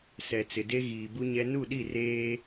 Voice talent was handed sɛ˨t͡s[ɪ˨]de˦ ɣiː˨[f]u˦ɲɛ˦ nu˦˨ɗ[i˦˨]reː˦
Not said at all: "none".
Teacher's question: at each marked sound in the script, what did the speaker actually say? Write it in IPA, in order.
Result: ɪ˨, b, i˦˨

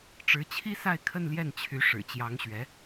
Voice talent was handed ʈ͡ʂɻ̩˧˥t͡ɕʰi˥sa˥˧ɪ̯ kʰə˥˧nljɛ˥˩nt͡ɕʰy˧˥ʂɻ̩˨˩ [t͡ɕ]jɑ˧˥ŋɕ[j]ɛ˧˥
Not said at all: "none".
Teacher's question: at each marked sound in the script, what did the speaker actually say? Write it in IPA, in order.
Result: t͡ɕ, ɥ

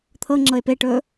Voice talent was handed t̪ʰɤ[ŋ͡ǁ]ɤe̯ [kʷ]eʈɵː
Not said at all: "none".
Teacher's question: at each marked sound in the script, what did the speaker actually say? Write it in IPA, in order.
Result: ŋ͡ǁ, p

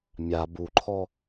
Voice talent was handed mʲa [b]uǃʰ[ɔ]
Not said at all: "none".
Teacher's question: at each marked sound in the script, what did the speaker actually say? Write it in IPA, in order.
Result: b, ɔ

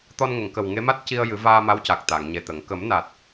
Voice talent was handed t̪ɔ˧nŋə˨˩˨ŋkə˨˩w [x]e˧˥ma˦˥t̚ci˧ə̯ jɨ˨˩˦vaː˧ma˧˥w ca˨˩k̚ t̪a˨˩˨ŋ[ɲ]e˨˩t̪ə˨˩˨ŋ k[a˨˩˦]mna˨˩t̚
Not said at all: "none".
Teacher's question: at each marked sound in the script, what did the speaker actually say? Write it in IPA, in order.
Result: ŋ, ɲ, ə˨˩˦

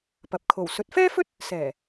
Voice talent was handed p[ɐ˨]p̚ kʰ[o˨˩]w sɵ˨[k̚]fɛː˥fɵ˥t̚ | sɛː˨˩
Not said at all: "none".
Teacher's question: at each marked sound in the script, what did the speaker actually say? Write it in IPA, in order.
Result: ɐ˨, o˨˩, t̚

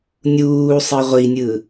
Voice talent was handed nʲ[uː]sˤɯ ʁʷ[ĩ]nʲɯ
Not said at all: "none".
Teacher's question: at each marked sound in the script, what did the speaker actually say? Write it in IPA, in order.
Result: uː, i

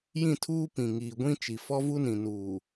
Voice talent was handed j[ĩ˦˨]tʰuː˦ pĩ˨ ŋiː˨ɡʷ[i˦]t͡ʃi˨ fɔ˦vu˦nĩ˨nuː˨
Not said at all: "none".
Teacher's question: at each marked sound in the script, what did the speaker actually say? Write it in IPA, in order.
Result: ĩ˦˨, ĩ˦

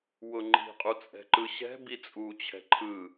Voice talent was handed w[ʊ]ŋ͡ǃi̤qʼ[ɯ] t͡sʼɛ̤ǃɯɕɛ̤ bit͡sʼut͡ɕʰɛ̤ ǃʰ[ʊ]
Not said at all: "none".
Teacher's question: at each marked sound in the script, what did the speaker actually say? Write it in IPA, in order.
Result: ʊ, u, ɯ

